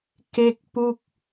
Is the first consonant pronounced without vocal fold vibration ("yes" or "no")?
yes